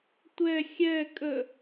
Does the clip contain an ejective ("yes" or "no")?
yes